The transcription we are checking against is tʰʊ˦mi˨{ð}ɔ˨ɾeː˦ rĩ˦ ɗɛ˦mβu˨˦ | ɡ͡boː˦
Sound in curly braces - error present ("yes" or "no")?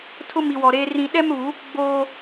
yes